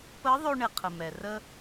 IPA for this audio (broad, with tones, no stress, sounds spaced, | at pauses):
p ə˧˥ ðˤ ɵ˧ ɳ e˩ qʰ ə˩ m ɛ˩ r ə˧